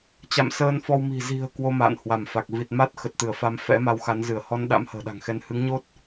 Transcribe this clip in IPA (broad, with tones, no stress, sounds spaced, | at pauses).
t͡ɕ a̰˧˨ m s əː˧ n f ɔ˧ w m i̤˨˩ z i̤˨˩ ə̯ k w o˧ m a̰ː˧˨ n h w a˧˩ m f a˨˩ k̚ v i˨˩ t̚ m a˦˥ t̚ x ə˨˩ t̚ t̪ ɨ˧˩ ə̯ f a˨˦ m f ɛ̰˧˥ m a˧ w x a˨˦ n z ɨ˧˩ ə̯ h ɔ˧ n ɗ a̰˧˥ m h ə̤ː˨˩ ɗ a̤˨˩ ŋ x ɛ˧ n h ɨ˨˦ ŋ ɲ o˦˥ t̚